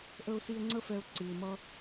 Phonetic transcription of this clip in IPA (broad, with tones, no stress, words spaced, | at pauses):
ʔə˧ʊ̯si˧ə̯ ŋ͡ǀə˥fɛ˧ʊ̯ ǀɨ˩ɪ̯mʌ˧